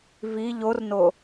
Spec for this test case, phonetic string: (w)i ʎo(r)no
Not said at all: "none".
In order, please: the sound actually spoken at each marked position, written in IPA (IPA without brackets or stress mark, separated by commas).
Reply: v, r